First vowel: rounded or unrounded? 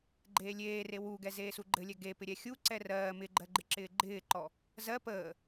unrounded